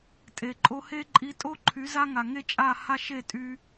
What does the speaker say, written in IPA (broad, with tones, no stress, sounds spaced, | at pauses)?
tʼ e˨ ǃʼ o˧ h e˦ ǃʼ i˧ tʼ o˦ ǃʰ y˨˦ z a˦ ŋ a˨ ŋ e˦ t͡ʃʼ a˦˨ h a˦ ʃ e˦˨ tʼ y˧